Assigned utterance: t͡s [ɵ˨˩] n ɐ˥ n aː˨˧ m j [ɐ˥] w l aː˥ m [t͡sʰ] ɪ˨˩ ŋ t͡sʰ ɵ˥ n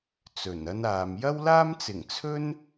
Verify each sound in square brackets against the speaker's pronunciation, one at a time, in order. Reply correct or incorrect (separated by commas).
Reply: correct, correct, incorrect